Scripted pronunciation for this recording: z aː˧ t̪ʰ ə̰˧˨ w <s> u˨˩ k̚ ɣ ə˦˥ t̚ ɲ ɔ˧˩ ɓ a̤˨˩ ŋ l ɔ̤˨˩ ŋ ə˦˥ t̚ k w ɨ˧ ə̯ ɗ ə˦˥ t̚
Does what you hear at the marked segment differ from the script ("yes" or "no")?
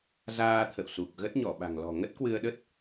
no